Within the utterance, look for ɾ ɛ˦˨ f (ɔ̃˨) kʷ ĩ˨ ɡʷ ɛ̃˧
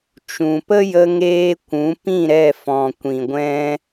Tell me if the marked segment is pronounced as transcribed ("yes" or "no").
yes